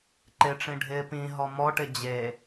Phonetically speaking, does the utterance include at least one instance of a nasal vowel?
yes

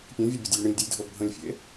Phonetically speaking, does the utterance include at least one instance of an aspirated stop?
no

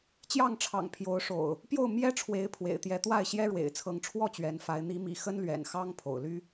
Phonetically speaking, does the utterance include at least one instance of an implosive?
no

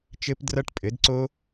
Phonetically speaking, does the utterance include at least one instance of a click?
yes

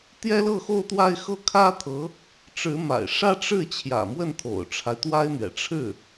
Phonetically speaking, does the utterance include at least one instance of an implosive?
no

